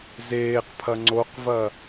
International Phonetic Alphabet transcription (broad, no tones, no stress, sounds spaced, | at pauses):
z eː q pʰ ɐ ŋ͡ǀ o q v ɐ